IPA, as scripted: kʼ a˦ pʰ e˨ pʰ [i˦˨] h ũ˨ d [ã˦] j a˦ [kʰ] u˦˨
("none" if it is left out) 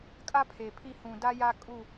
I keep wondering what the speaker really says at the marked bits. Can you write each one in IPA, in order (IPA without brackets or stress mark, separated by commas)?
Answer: i˦˨, a˦, kʼ